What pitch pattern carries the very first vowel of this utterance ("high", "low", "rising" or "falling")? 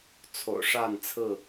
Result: low